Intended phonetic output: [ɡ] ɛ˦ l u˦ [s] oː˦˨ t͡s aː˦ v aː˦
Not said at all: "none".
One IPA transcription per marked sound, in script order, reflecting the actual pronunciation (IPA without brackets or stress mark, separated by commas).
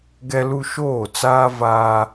ɡ, ʃ